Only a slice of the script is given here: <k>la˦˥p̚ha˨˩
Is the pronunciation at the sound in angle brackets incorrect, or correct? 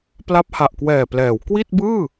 incorrect